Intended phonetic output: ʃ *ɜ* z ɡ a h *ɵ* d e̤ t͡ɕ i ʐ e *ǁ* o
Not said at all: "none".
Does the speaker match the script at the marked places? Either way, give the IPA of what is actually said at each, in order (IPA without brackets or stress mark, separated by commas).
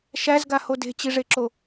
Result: æ, o, ǁ